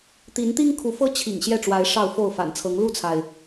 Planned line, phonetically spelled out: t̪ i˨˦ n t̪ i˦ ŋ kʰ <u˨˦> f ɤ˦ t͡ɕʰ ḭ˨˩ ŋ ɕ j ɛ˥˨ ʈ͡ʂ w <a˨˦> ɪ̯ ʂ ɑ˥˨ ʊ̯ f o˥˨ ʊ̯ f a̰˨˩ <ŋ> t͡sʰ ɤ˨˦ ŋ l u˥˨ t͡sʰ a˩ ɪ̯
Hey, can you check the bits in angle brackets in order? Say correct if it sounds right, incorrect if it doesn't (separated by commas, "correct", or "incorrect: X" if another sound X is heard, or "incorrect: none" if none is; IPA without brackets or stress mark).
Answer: correct, correct, incorrect: n